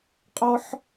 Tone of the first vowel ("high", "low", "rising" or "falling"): high